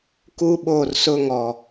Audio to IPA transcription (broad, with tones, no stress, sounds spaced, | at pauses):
k u˦ ɓ o˦˨ r s ʊ˦ ŋ ɔ˨